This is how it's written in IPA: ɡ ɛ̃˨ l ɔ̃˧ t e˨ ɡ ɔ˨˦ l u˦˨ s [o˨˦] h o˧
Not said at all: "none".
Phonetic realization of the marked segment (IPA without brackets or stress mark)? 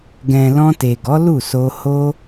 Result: o˧